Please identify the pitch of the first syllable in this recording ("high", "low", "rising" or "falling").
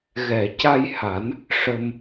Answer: low